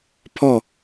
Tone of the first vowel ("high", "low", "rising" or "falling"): falling